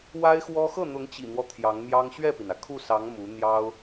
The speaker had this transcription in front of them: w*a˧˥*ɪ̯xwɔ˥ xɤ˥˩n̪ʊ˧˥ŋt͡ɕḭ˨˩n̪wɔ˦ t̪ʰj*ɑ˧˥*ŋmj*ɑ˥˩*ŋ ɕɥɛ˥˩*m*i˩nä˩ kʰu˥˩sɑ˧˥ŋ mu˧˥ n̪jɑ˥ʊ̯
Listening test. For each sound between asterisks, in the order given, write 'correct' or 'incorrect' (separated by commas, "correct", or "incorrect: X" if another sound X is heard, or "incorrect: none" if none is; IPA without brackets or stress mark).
incorrect: a˥, correct, incorrect: ɑ˥, incorrect: p